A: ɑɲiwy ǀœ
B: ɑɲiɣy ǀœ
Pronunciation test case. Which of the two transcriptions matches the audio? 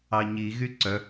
B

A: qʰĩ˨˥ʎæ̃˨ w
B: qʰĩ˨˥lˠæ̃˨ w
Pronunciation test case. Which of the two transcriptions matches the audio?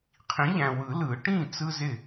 A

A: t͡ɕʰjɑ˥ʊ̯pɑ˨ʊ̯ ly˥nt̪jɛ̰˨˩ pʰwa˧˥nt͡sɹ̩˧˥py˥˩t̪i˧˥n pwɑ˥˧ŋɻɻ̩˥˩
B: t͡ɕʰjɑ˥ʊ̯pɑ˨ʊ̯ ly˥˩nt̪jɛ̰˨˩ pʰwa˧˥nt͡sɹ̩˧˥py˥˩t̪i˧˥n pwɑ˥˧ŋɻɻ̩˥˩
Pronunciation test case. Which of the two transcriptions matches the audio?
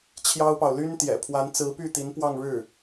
A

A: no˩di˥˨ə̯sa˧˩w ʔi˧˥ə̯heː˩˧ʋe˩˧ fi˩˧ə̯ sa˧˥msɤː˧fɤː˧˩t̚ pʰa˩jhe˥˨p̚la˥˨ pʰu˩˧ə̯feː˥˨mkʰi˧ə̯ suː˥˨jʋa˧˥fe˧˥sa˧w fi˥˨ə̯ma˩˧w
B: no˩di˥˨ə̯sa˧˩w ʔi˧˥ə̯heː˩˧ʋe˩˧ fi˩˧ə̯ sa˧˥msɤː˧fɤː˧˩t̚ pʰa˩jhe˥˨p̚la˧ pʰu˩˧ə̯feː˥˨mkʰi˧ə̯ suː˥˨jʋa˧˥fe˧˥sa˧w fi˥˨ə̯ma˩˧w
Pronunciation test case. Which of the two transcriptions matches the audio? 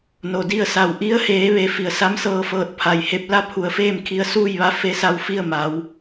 A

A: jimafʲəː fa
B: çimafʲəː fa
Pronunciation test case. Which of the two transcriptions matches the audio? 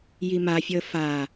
A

